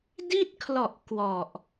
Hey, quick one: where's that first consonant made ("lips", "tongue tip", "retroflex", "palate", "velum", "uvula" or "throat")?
tongue tip